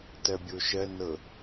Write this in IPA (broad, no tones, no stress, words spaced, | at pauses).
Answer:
tɜbʲoʃɜ nɤ